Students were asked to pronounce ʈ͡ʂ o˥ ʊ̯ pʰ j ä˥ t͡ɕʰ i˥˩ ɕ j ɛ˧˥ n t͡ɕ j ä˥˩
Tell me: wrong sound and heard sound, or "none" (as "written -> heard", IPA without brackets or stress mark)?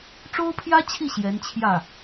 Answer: t͡ɕ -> t͡ɕʰ